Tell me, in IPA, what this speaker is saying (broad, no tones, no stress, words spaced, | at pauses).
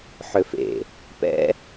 ħʏfḛ | pɛ̰